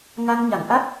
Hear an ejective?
no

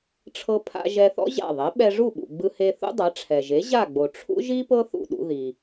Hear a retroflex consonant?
yes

